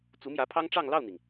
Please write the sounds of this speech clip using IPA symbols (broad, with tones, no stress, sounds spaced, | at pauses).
t͡s u˧˥ m j ä˧˥ pʰ ɑ˥ ŋ ʈ͡ʂ ɑ˥˧ ŋ l ɑ˥˩ ʊ̯ n̪ i˩ ŋ